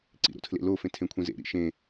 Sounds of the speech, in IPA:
ǀ ḭ ɾ o̰ tʰ l ḛ l o f ẽ tʰ ẽ kʷʰ ĩ z ḛ ɾ ḭ ʃ ẽ

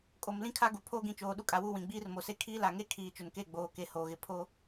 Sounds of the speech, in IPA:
kʼ o˨ m l ĩ˦ kʰ a˦ ɡ u˨ pʰ oː˦ ɡ ĩ˨ t͡ʃ oː˨ ɗ u˦ kʼ a˨ w u˦˨ w ĩ˨ ɡ͡b iː˦ r m o˨ s e˦ kʰ iː˦ l a˨ ŋ e˦ kʰ iː˨ t͡ʃ ʊ˨ n k e˦˨ ɡ͡b oː˨ k e˨ h oː˨ ɣ ɪ˨ pʰ o˦

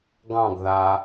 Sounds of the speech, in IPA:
ɡ ɑ̃ ɡ ð a

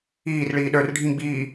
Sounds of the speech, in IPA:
iː r ɭ iː ɗ ə˞ r ɖʱ ĩ ɡ͡b iː

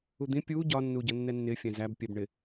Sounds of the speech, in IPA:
u d̪ ĩ pʲ uː ɟ ɒ nː uː ɟ ʌ nː ɛ nː ɪː fʲ æ̃ z æ b pʲ ɛ b ɳ ɪ

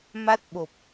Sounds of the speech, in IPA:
m a˦˥ t̚ ɓ o˨˩ p̚

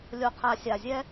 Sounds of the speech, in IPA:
lʲ o˨ qʰ a˨ sʲ a˨ zʲ ɛ˧

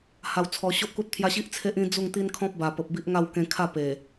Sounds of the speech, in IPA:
h a˧ w t͡sʰ ɔ˧ ɕ o˦ ʔ k u˦ t̚ t̪ʰ j a˦ ɕ i˦ ʔ t͡sʰ e˦ ʔ ĩ˦ d͡z u˥˧ ŋ t̪ i˦ n kʰ ɔ̃˦ p̚ b a˨˩ p ə˨ p̚ b i˦ ʔ ŋ a˥˧ w k ẽ˧ kʰ a˥˧ p e˨˩

